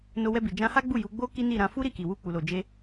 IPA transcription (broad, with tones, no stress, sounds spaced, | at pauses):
n o˧ w ɛ˧ b i˨ d͡ʒ ã˧ h a˦ ɡ͡b u˦˨ j u˨˦ ɡ͡b o˦ k i˦ n i˦˨ ɾ ã˨˦ f u˦ ɾ i˦˨ k i˨ w u˧ k͡p u˨ l o˨ d͡ʒ e˧